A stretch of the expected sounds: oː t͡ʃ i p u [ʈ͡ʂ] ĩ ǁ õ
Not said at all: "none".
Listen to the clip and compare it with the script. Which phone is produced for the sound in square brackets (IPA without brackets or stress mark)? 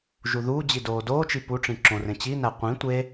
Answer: ʈ͡ʂ